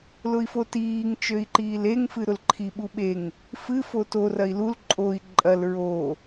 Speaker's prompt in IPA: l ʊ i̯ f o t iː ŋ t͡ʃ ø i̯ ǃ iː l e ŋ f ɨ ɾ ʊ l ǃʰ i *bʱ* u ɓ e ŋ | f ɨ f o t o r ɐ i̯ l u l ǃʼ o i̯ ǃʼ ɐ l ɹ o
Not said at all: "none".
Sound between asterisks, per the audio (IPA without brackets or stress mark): ɓ